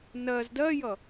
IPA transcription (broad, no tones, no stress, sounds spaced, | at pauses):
n ɜ z d ɜ j ʌ